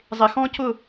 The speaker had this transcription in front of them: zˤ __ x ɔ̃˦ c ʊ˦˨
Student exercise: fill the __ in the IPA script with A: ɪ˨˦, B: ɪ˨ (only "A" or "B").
B